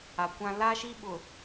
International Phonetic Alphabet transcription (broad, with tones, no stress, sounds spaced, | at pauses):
a˨ kʷ ã˦ l a˦ ʃ i˦ ɓ ʊ˨